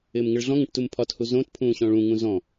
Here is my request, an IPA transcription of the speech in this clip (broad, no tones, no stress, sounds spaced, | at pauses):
ɪː m ŋ ɪ ɭ ɮ ɔ̃ ŋ ə̃ ʈ t u m pʰ ɒ t h u z õ t pʰ ũː ɕ ɔ̃ ɭ ũ ŋ ũ z ɔ̃